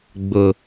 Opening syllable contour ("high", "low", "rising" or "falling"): low